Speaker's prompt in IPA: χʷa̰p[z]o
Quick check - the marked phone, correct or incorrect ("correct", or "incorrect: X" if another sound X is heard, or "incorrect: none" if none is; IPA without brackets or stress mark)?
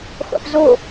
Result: correct